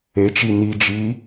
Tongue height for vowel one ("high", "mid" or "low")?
mid